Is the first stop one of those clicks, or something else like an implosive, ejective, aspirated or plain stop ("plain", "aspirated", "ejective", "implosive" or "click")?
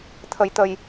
aspirated